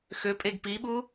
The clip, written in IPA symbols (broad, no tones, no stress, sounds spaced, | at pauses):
x ø pʼ e ɡ p i ɓ u